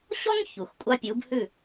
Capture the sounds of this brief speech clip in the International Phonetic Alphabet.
ɕ ɔ˦ ŋ ç u˩ x kʷʼ ɑ˦ pʲ u˩˥ b h ʉ˥˩

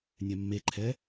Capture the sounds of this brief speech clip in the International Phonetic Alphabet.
nʲ ɛ mː e ǃʰ ɛ

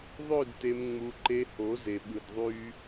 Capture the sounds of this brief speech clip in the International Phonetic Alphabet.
ðˤ ø˦˨ d t e˧ m ŋ͡m u˧ ǃ e˧ h o˨˦ z e˧ ɓ ɯ˧ d ðˤ y˦

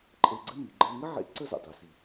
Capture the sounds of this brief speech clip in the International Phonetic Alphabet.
ǃʼ e˧ ɡ͡ǀ ə˥ m i˩˧ ɡ͡ǃ əː˧ ŋ ə˥ ʕ ḛ˧˥ ǀ ə˥ z ə̰˩ dˤ ʉ˩˧ s i˩

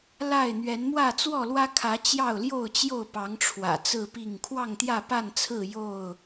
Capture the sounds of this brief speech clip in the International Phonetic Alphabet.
l a˥˨ ɪ̯ n̪ ɥ ɛ˨˦ n m w ä˥˨ t͡s w ɔ˥˨ l w ä˦ kʰ ä˨˦ t͡ɕ j ɑ˥˨ ʊ̯ l j o˥˨ ʊ̯ t͡ɕ j o˥˨ ʊ̯ p ɑ˨˦ ŋ ʈ͡ʂʰ w ä̰˨˩ t͡s ɹ̩˥˨ p i˥˨ ŋ kʰ w ɑ˥˨ ŋ t̪ j ä˥˨ p a˥˨ n t͡sʰ ɹ̩˥˨ j o˥˨ ʊ̯

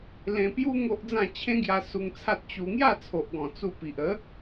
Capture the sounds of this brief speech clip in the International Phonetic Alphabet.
l ẽ˧ p j u˦ ŋ o˦ ʔ d͡z ã˥˧ t͡ɕʰ ẽ˦ ɡ j a˧ s u˧ ŋ t͡sʰ a˦ t̚ t͡ɕ u˧ ŋ j a˥˧ t͡sʰ o˨ ʔ ɡ ɔ̃˨˩ t͡s u˧ p i˨ ʔ ə˨˦

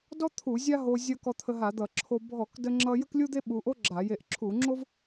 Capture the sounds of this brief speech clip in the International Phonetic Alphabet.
d ɔ˥ t̪ʰ u˧˩˧ zʲ a˥ ɦ o˧ zʲ ʌ˧ k ɔ˧ t̪ʰ ə˧ ɦ a˧˩˧ d̪ ʌ˧˩˧ ǁʰ o˧ bʱ ɔ˧˩˧ k d ə˥ ŋ͡ǁ ʌ˥ j ə˥ k lʲ u˥ d̪ e˥ ɓ u˧ ʔ o˥ ɡ͡ǁ a˧˩˧ j e˧ ʔ ǁʰ u˧˩˧ ŋ͡ǁ o˥ v

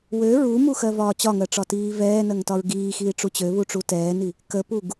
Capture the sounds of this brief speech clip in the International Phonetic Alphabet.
w ø ɹ u m u x ɜ v ɒː t͡ɕ ɒ ŋ ɜ ʈ͡ʂ ɒ t iː v ɛː n ɜ ŋ t ɒ ɹ ɡ iː x iː ʈ͡ʂ u t͡ɕ ø β u ʈ͡ʂ u t ɛː n i | k ə p u ɡ

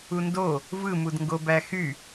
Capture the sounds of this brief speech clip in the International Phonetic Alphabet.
u n d o | v ɯ m u d ŋ ɡ o b æ x y

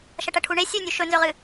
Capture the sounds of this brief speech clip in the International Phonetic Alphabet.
ʃ ɐ ʈ ɐ ʈʰ u ɳ e sʲ ʉ nʲ ʉ ʃ ɵ n z ɵ ʁ ɨ

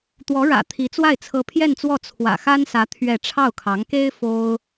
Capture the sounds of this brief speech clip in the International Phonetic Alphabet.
t̪ w ɔ˧˥ ɻ ä̰˨˩ t̪ʰ i˧˥ t͡s w a˥˩ ɪ̯ t͡sʰ ɤ˥ pʰ j ɛ˥˧ n t͡s w ɔ˥˩ t͡sʰ w ä̰˨˩ x a˥ n s ä˧˥ t̪ʰ ɥ ɛ˥˧ ʈ͡ʂʰ ɑ˥˩ ʊ̯ kʰ ɑ˧˥ ŋ k e˥ ɪ̯ f o˥ ʊ̯

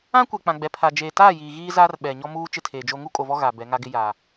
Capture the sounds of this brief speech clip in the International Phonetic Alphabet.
ã˦ kʷ ɛ˨ k͡p ã˨ ɡ͡b ɛ˨ pʰ a˨ d͡ʒ eː˨ t aː˦˨ j iː˨ ɣ iː˦ z aː˦ r ɓ ɛ˨ ɲ ɔ˦ m uː˦ t͡ʃ ɪ˦ tʰ eː˨ d͡ʒ o˦ ŋ u˦ kʼ o˨ v ɔ˦ ɣ a˨ b ɛ˨˦ ŋ a˦ ɡ ɪ˦ j aː˨

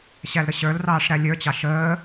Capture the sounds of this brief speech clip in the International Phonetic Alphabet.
ɕ æ l ɾ ə ɕ ə˞ l r ɑː ʂ ɾ æ lʲ ə˞ t͡ɕ ɑ ʃ əː

